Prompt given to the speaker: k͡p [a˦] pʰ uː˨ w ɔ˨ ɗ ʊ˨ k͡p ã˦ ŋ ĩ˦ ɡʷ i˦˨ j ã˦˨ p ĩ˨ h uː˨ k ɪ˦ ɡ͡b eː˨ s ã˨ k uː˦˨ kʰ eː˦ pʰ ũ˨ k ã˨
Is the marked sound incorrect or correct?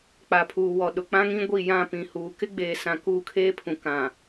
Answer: incorrect: a˨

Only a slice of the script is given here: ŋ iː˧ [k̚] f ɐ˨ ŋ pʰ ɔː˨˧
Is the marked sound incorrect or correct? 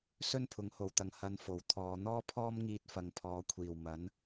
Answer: incorrect: t̚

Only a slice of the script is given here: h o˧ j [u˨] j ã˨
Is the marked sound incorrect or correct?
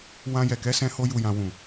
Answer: correct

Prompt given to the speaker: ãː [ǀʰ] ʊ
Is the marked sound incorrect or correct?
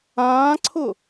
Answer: correct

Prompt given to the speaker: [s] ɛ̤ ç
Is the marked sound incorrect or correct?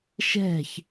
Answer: incorrect: ʃ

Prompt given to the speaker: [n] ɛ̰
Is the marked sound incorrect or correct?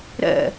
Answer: incorrect: ɾ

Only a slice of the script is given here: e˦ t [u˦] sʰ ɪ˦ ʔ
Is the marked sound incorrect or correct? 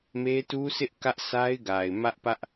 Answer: correct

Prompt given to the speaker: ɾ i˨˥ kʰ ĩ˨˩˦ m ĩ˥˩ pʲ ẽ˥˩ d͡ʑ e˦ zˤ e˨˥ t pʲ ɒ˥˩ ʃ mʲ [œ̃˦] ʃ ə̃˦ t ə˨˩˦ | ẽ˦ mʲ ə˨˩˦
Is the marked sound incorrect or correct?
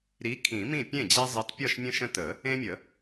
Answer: incorrect: ə̃˦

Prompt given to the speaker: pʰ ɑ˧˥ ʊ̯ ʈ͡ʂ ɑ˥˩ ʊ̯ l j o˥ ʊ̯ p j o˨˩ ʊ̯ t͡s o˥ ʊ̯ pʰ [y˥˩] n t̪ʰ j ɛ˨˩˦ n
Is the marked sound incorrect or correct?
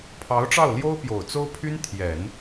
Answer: incorrect: y˥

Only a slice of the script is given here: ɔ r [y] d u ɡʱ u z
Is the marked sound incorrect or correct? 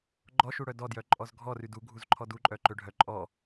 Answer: correct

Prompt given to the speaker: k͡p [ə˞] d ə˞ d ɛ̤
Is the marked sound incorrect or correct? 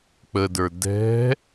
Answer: incorrect: ə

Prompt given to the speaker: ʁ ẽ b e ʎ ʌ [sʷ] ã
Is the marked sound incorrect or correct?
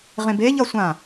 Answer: correct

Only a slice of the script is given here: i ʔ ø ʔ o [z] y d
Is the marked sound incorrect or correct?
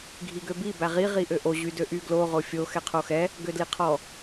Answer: incorrect: ʑ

